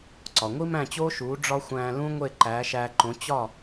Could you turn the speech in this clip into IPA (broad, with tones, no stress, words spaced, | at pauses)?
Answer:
ǀɒ˩ ŋʷi˥mæ̃˥˩t͡ɕoː˥ʃuː˩˥ ɖ͡ʐɒ˥xʷæ̃ː˧ lũ˥ŋʷe˥˩ ǃæː˩˥ʃæː˧ǃõ˩˥ t͡ɕɒ˥˩